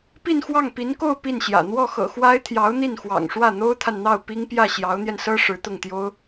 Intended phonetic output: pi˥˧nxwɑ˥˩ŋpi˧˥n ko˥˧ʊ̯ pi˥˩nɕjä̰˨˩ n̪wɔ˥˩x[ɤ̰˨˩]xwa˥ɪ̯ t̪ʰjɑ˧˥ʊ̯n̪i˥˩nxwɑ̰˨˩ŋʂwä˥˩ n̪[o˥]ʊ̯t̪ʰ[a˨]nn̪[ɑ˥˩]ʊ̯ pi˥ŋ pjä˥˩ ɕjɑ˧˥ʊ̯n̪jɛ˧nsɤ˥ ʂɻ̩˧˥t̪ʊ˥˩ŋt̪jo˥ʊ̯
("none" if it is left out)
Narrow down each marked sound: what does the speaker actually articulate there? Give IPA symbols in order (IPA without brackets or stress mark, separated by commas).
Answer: ɤ̰˨˩, o˥, a˨, ɑ˥˩